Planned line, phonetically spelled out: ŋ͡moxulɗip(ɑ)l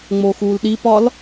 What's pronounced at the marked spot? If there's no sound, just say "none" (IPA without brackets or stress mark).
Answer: ɒ